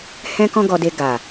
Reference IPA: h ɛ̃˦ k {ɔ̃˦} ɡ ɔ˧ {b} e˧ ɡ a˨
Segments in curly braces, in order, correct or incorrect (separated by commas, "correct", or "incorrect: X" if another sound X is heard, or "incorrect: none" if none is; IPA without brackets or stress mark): correct, incorrect: d